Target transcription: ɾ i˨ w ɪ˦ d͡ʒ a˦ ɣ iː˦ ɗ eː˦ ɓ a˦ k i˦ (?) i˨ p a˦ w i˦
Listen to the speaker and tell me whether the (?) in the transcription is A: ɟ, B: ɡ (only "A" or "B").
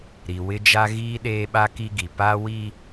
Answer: B